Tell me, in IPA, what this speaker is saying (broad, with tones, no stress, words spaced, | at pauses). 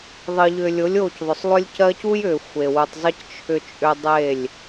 ðˤɨ˨ʎʏ˨lʲo˨˦lʲ o˦˨cðˤʏ˨sˤlˠʏ˦lʲ cɜ˦c u˦jʏ˨ xʷe˨wu˨tˤzˤɨ˦c t͡ʃʰʏ˦t͡ʃʼʏ˦ dˤe˦˨lʲ